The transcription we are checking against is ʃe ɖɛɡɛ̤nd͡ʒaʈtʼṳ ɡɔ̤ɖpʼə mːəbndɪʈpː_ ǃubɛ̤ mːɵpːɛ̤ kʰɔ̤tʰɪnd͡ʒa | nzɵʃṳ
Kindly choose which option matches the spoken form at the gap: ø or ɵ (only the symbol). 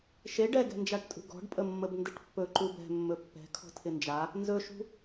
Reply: ɵ